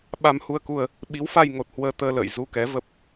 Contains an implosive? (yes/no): yes